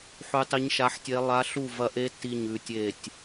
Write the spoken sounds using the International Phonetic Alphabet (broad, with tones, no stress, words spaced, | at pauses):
ħʉ˦˥tˤi˦˥ɲ ʃa˦˥ħtʲe˦˥ lˠa˦˥ɬu˥˧vɐ˦˥ʔe˦˥ ti˥˧ɲʉ˥˧tʲe˥˧tʲ